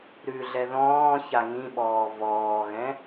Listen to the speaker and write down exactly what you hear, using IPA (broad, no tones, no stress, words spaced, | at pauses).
ɾʉɮɛ ðɔ̃ː çaŋĩɓɔː vɔːɣɛ̃